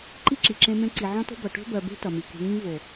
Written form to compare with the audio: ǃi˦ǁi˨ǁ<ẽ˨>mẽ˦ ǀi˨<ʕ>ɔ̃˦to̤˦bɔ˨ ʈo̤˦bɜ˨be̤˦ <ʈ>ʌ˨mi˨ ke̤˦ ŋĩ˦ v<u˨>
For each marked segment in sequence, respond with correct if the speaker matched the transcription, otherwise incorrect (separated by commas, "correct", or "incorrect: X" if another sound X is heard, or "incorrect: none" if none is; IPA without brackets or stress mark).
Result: incorrect: ẽ˦, correct, incorrect: t, incorrect: o˨